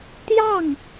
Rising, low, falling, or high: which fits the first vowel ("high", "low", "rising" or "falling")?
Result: falling